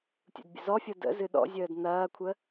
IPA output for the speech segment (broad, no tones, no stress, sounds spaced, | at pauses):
tʲ ṵ d bʲ ə̰ z ɔ fʲ ɤ d ə̰ z ɨ ɗ ɔ̰ zʲ əː d n ɐː kʷʰ ə